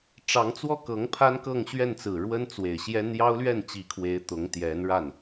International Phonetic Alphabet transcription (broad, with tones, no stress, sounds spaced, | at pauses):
ʈ͡ʂ ɑ˧˥ ŋ t͡s w ɔ˥˩ k ɤ˧˥ ŋ pʰ a˥ n k ɤ˥˧ ŋ ɕ ɥ ɛ˥˩ n t͡s ɹ̩˨˩ ɻ w ə˥ n t͡s w e˨˩ ɪ̯ ɕ j ɛ˥ n j ɑ˥ ʊ̯ l ɥ ɛ˥˩ n t͡ɕ i˧˥ kʰ w e˧˥ ɪ̯ t̪ ʊ˧˥ ŋ t̪ j ɛ˧˥ n ɻ a˥˩ n